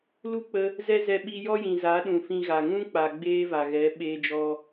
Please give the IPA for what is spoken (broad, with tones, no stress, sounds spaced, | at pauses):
l u˦ k͡p ə˧ | z ɛ˦ z ɛ˧ ɓ i˧ j ɔ˦ j ĩ˨ z a˨˦ ɗ ũ˨ f ĩ˧ ɣ a˨ ŋ ũ˦ k͡p a˨ ɡ͡b eː˦ v a˨ ɣ ɛ˨˦ ɓ eː˧ d͡ʒ ɔ˧